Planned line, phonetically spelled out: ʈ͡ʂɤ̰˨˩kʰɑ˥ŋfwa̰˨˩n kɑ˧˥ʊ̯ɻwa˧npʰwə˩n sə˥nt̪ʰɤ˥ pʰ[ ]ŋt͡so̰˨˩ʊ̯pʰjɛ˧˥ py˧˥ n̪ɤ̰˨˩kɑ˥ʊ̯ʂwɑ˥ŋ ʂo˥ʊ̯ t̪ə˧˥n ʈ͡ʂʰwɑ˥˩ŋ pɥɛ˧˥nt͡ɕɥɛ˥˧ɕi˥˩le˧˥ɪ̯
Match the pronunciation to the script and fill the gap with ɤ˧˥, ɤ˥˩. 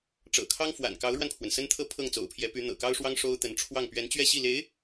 ɤ˥˩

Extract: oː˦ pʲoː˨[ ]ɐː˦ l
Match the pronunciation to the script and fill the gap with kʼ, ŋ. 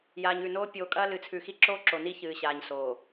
kʼ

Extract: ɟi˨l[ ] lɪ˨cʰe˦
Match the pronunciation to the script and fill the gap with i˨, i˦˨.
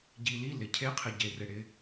i˦˨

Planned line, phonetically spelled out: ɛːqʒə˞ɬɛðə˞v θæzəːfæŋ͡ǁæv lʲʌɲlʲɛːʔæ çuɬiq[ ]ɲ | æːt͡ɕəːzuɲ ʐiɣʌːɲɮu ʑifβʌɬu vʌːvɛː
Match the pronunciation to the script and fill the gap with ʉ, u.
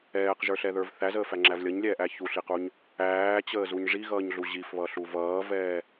u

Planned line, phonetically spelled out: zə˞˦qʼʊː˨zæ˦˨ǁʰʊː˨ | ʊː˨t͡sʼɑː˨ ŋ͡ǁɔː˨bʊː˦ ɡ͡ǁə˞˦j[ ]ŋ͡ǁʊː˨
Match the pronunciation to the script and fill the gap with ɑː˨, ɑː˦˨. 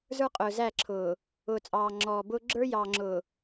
ɑː˨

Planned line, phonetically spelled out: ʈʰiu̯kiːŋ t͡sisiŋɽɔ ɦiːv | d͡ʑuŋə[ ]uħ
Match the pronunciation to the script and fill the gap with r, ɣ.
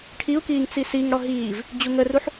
r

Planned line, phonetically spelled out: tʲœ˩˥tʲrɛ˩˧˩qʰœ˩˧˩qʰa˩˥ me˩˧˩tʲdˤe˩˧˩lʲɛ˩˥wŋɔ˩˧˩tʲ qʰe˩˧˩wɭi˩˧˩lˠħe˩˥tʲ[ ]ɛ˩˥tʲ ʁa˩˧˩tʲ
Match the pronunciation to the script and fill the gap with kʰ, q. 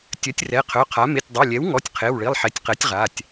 q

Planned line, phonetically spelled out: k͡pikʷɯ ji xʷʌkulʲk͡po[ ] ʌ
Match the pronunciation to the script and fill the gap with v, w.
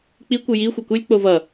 v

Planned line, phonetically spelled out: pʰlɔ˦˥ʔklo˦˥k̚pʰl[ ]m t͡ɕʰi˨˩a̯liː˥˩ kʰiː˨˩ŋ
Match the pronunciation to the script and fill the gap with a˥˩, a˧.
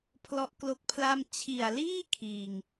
a˥˩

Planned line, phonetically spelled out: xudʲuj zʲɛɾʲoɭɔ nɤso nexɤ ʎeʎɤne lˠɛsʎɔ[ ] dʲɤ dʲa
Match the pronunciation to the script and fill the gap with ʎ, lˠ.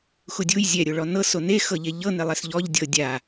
ʎ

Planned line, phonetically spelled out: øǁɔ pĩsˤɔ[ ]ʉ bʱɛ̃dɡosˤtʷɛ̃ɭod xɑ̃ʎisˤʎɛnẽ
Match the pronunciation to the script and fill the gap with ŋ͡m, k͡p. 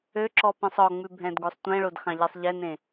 ŋ͡m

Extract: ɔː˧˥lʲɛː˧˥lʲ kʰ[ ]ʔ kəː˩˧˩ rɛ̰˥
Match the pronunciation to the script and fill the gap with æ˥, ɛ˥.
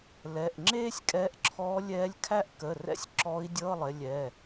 æ˥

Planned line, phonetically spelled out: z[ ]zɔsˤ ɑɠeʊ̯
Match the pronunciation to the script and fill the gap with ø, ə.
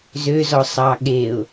ø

